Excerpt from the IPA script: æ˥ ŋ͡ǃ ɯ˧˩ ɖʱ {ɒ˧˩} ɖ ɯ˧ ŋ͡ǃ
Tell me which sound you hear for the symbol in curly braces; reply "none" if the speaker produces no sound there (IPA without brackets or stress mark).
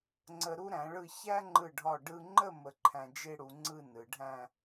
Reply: ɒ˧˩